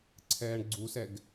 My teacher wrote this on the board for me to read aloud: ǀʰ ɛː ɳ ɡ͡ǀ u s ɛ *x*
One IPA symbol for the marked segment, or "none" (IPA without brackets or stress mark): ɡ